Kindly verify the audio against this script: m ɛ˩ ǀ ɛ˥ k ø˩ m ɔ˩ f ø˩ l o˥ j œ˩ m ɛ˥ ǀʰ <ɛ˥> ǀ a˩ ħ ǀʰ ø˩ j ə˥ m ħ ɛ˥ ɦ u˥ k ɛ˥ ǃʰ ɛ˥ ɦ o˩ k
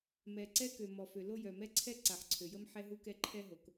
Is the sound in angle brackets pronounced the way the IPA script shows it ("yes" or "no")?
yes